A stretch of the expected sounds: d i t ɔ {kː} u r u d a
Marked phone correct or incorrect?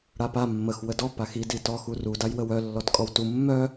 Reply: incorrect: x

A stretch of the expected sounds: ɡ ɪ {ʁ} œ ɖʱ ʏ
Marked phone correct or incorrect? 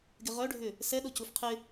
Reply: correct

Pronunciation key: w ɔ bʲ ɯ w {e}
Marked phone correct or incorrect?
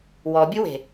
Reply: incorrect: e̤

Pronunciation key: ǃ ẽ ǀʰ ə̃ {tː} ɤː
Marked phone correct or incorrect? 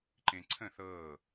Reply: incorrect: θ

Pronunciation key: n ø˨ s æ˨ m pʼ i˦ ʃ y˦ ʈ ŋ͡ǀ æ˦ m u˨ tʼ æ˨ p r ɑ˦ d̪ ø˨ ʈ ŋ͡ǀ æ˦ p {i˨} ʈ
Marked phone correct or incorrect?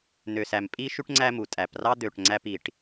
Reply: correct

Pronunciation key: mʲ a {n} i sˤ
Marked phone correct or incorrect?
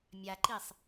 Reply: incorrect: ǃ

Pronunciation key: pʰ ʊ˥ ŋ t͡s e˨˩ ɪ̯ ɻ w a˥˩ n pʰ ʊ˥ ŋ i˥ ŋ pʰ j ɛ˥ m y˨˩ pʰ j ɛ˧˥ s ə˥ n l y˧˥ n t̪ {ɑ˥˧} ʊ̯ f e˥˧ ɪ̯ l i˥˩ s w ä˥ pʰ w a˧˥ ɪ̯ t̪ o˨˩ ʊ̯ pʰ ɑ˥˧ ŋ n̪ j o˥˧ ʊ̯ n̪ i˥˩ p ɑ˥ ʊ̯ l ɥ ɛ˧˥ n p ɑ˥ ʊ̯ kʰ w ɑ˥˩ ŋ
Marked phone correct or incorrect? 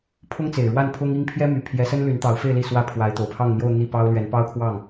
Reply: incorrect: ɑ˧˥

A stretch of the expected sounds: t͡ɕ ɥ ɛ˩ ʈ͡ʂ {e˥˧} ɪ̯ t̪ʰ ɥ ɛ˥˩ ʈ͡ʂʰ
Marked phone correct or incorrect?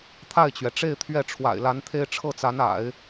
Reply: correct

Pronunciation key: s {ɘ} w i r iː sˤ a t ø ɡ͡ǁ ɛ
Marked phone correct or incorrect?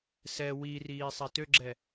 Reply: incorrect: ɛ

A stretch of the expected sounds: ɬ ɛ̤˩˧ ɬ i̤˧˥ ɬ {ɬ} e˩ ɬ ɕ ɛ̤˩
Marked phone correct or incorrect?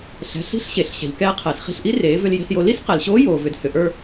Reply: incorrect: ɕ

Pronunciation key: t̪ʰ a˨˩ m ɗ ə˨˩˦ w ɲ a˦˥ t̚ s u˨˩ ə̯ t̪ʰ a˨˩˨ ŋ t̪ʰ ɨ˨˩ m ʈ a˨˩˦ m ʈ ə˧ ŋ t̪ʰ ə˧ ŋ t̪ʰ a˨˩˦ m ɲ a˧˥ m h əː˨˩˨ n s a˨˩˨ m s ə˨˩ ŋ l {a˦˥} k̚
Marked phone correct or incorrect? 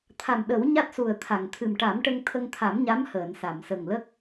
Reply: incorrect: ə˦˥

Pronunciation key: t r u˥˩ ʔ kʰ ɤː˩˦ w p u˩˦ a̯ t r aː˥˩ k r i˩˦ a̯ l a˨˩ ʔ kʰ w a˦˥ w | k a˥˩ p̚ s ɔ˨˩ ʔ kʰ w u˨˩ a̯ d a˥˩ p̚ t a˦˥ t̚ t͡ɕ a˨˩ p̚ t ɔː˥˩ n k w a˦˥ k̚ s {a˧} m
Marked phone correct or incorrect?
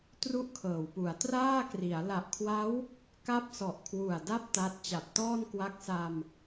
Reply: correct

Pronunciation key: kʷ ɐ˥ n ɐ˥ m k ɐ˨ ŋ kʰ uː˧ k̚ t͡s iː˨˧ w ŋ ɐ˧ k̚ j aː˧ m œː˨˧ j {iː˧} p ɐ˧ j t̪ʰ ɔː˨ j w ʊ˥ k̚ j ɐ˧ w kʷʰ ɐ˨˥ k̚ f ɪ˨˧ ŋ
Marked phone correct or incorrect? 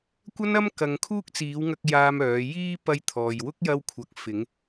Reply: correct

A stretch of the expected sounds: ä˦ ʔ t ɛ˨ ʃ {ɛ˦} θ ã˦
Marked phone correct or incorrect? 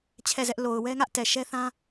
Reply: correct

